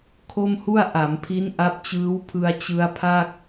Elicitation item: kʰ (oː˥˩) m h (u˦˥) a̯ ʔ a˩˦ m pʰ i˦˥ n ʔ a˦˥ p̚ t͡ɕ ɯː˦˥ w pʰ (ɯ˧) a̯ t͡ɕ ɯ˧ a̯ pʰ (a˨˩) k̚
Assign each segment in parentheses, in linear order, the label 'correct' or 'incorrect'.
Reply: incorrect, incorrect, correct, incorrect

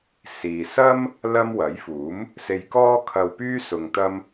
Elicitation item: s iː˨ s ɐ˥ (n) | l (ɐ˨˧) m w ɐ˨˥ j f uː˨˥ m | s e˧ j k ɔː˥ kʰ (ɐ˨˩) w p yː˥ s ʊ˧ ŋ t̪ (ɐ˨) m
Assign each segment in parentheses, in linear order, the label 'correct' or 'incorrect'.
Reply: incorrect, incorrect, incorrect, incorrect

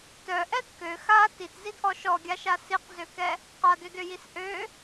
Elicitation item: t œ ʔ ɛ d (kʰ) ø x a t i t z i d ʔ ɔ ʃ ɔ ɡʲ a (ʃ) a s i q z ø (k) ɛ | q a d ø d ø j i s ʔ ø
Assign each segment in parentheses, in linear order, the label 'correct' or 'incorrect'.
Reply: incorrect, correct, correct

